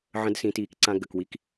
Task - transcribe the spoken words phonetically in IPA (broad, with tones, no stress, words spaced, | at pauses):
ʕə̃˧˥dsĩ˩˧tiː˩kǀã˧ ɡə˩kwi˧˥k